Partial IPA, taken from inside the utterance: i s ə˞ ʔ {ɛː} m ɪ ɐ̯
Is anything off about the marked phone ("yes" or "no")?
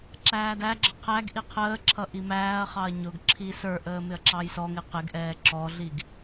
yes